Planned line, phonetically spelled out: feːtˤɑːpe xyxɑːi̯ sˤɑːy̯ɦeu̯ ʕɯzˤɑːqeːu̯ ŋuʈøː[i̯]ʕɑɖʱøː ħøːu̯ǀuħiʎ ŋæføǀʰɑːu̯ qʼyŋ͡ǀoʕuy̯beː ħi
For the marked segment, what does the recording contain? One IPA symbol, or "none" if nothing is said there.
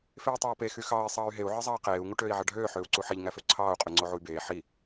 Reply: i̯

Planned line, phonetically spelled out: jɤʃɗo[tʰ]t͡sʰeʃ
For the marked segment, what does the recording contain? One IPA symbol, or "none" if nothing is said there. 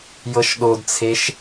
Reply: d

